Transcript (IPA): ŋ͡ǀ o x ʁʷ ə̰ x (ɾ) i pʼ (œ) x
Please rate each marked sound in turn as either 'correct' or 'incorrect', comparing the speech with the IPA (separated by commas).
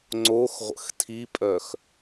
incorrect, correct